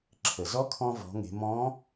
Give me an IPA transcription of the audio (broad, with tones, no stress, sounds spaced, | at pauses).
ǁʰ ə˩ z ɔ˧˥ kʰ ɔ̃˧ v ɔ̤˩˧ ŋ e̤˩˧ m ɔ̃˧˥